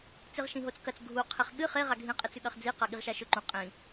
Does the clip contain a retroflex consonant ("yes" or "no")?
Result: no